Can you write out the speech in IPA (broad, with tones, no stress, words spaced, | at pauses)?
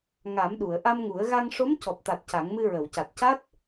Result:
ŋa˨˩˦mɗu˨˩˨ə̯ ʔa˧mŋu˨˩˦ə̯ ɣa˧ŋ ʂo˧˥mcɔ˨˩p̚t̪a˨˩t̚ ca˨˩˦ŋmɨ˧ ɹə˨˩˨wca˨˩t̚ ca˦˥t̚